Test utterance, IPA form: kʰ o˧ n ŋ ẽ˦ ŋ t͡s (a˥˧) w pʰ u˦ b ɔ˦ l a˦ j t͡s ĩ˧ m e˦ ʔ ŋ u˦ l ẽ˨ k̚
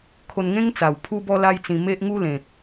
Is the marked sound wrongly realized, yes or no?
yes